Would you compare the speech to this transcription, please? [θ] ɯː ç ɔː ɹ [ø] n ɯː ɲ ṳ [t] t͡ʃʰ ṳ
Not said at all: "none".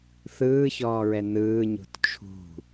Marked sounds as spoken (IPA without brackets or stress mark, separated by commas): θ, ɛ, t